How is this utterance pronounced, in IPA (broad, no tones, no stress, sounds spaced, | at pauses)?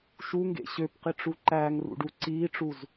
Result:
ʃ u ŋ ɡ ḛ ɕ ø p q i ʈ͡ʂ u ǃ æː ŋ r ṵ ɖ uː ǀ iː ʈ͡ʂ u z